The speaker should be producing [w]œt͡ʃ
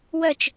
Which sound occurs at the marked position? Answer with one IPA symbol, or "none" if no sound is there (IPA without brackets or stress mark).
w